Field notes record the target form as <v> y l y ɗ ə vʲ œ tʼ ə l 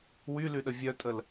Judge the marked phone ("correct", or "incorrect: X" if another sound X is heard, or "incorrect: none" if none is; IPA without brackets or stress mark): incorrect: w